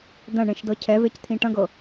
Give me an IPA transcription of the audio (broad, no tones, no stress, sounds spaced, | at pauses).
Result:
d̪ ɐ̃ ɳ ẽ ʃ d ɤ cʰ ɛ v e c t̪ʰ ĩ ʈ ɐ̃ ɡ ɤ